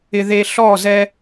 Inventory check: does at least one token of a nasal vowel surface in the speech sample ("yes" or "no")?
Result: no